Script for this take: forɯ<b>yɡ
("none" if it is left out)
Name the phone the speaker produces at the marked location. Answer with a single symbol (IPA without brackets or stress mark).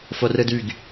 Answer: d